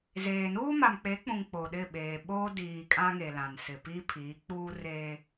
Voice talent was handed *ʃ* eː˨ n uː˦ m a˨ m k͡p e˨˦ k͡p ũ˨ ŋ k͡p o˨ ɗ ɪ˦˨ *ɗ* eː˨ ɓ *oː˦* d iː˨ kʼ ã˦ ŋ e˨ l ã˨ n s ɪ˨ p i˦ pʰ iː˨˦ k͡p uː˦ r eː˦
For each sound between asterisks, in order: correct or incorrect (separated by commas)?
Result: incorrect, incorrect, correct